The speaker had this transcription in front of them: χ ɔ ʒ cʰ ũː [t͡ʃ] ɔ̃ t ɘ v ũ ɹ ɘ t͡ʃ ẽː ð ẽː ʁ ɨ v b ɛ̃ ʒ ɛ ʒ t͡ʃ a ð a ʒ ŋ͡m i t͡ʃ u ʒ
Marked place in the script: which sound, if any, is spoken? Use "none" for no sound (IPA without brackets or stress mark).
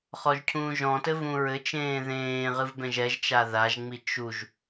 ʒ